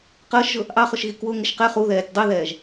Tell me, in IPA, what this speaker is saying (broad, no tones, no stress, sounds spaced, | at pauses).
q əː ʃ ʒ ʊ | ʔ ɑ χ ʊ ʃ ɣ i k w ʊ ŋ ɪ ʃ q ɛ χ u ð ɛː tʲ dˤ i ð ɛː ʒ